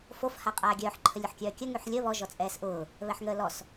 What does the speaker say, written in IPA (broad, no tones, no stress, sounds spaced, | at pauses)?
f o f h a qʼ aː ɡʲ œː ħ ǃʰ ə lʲ ʊ ħ kʲ œː kʲ ə ŋ y ħ lʲ əː β ɔ ʒ ɔ t͡sʼ ɛː s ʔ ʊː | β ɛ ħ ŋ əː l ɔ s